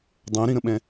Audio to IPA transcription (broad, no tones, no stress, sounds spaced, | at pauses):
dˤ õ ɾ ĩ ɾ ə̃ ɓ ɛ̃